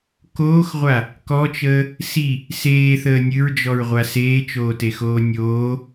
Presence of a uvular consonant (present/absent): present